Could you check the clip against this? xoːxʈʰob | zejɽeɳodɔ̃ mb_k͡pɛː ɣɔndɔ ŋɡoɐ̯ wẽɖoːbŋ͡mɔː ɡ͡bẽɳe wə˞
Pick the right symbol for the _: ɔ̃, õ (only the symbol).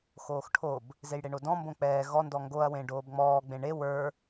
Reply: õ